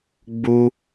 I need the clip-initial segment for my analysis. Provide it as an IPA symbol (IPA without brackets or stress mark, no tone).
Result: ɡ͡b